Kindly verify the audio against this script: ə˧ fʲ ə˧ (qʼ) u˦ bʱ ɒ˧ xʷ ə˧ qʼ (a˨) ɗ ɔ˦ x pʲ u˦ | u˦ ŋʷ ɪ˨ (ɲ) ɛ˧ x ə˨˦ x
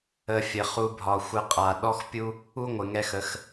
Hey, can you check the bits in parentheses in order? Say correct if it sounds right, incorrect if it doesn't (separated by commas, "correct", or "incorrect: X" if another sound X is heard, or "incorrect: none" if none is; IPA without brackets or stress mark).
incorrect: χ, correct, incorrect: ŋ